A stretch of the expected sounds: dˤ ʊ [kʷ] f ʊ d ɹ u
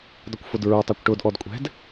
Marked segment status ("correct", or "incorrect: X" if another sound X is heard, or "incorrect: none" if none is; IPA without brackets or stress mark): correct